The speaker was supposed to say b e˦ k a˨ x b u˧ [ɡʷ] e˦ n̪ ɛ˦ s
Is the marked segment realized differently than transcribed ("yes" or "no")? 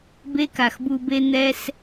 yes